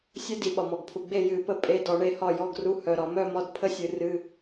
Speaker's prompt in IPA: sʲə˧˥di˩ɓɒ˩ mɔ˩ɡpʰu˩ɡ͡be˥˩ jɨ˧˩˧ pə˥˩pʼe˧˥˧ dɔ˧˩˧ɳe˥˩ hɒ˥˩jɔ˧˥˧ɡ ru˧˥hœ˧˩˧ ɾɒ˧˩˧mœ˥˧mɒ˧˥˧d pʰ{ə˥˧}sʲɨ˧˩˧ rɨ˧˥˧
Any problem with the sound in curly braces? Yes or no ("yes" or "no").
no